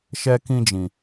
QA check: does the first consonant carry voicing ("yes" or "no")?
no